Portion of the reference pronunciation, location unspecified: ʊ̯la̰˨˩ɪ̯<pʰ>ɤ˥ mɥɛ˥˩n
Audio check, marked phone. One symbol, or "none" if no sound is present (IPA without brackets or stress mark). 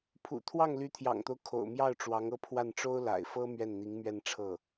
f